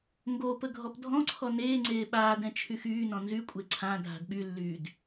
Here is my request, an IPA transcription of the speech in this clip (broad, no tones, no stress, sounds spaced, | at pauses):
ŋ ɡ o p ə ɡʱ ɔ p dʱ ɔ̃ ǀʰ ɔ n eː ŋ͡ǀ eː ɓ aː d ɛ̃ t͡ʃʰ y x yː n ɔ̃ n z y kʷʼ e ǀʰ ã dʱ a̤ d ɓ y lː yː d